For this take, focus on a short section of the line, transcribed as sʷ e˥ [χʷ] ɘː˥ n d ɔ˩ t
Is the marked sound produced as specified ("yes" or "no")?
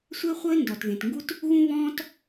yes